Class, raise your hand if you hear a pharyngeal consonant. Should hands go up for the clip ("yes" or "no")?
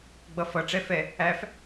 no